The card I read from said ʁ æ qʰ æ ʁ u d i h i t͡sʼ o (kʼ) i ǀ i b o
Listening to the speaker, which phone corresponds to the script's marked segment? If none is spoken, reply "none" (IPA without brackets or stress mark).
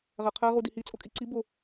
kʼ